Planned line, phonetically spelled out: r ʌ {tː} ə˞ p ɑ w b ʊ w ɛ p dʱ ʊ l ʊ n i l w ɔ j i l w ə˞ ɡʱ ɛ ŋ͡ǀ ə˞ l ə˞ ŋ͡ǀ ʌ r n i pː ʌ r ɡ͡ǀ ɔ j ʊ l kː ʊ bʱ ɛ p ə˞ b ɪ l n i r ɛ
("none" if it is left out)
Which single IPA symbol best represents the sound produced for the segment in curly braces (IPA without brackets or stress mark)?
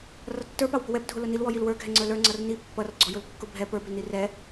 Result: tː